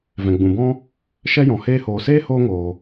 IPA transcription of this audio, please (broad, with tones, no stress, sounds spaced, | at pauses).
v ɛ̃˨ ɡ͡b ũ˨ b ɔ̃˦ | ʃ ɛ˦ j ɔ̃˨ h eː˧ h oː˨ s eː˦ h oː˦ ŋ oː˨